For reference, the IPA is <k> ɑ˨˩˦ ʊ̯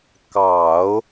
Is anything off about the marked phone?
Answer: no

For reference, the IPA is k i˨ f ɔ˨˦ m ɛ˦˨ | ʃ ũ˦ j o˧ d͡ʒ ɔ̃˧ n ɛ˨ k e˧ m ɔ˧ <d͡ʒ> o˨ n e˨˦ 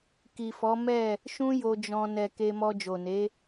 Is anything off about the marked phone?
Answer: no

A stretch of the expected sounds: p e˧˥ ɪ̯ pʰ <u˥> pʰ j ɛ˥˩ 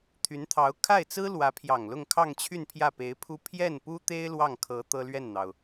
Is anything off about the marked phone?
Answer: no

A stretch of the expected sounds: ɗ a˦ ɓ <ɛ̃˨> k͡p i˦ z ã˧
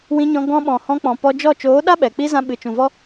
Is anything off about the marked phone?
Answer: yes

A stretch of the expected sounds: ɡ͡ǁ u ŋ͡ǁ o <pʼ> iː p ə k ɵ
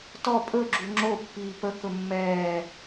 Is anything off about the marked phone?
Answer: yes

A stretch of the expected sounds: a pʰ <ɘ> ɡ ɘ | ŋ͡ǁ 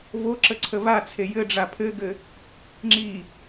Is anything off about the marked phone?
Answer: no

